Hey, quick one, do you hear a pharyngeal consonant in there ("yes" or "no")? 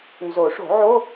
yes